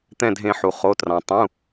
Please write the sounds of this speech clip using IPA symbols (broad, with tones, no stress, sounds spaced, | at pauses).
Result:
t̪ ɛ̃˧˩ dʱ ẽ˨˩˦ ħ u˩ χ o˩˧˩ t r ɑ̃˩ tˤ ũ˩˧˩